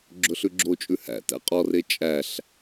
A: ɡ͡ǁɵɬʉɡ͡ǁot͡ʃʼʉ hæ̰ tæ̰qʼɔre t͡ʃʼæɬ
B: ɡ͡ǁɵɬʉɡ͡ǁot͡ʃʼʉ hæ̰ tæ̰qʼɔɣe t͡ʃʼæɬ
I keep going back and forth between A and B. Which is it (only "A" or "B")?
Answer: A